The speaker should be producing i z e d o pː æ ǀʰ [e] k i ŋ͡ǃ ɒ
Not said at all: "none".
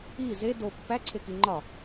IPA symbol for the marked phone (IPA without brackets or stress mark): e